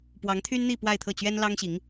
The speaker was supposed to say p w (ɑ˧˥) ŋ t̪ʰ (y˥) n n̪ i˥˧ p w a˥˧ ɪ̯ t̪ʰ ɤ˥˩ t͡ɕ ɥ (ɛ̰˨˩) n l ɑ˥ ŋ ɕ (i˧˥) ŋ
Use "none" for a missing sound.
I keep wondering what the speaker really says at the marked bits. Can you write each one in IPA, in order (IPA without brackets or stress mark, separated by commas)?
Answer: ɑ˧˥, y˥, ɛ˥, i˧˥